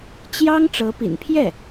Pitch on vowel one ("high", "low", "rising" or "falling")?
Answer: high